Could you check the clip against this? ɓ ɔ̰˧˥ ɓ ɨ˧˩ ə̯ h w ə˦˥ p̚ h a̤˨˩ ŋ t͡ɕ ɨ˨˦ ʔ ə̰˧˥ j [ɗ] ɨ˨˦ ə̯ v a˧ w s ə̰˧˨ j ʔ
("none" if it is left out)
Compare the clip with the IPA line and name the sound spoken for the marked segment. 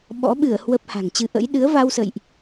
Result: ɗ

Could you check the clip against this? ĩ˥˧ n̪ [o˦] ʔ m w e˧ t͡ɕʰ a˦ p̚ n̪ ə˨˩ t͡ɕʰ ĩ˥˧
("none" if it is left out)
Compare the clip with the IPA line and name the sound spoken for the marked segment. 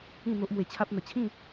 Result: o˦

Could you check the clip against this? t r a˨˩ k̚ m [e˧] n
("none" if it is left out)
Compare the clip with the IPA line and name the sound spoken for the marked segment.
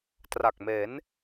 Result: e˩˦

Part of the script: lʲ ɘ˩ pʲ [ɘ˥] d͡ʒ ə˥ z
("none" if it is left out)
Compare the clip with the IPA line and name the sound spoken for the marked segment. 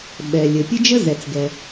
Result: ɘ˥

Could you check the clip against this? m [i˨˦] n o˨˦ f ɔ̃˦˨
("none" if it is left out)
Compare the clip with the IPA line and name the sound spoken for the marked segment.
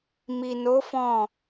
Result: i˨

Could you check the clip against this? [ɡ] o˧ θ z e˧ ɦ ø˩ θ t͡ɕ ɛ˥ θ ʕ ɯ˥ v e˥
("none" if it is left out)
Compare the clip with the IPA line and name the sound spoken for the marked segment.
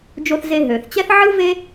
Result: d͡ʒ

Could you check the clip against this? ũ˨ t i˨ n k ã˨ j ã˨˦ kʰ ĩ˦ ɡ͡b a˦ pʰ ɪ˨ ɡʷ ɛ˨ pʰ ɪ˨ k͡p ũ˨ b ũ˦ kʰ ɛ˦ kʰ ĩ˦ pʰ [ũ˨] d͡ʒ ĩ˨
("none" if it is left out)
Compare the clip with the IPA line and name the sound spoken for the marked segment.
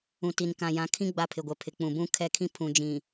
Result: ũ˨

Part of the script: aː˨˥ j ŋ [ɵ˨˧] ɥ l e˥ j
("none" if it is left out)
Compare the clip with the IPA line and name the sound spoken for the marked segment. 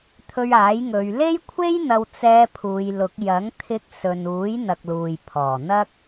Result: ɵ˨˧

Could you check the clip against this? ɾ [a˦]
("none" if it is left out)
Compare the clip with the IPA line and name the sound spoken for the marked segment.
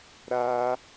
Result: a˦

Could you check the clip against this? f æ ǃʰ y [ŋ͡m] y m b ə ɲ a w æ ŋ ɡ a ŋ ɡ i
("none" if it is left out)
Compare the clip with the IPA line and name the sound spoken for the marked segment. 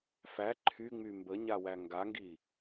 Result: ŋ͡m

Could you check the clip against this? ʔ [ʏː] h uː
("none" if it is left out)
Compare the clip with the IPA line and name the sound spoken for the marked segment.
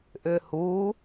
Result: ʏː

